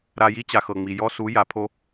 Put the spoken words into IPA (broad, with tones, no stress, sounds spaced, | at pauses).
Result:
ɾ a˧ j i˦ t͡ɕ a˨ x ɤ˨ ŋ͡m i˨ j ɔ˦ s u˨˦ j a˨ pʰ o˦